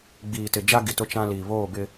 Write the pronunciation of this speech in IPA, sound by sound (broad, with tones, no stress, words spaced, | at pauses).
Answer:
ɡ͡biː˨tɪ˨d͡ʒa˦ ɡi˨tʊ˦t͡ʃã˦liː˨ βoː˦˨bɪ˦